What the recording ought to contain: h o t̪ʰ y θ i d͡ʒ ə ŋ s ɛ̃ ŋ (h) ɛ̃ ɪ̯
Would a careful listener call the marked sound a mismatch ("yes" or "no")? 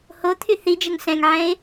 yes